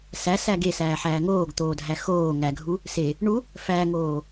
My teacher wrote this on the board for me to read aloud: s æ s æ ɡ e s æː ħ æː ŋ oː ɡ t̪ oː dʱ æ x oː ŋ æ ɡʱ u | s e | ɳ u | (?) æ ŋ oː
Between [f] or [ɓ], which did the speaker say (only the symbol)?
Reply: f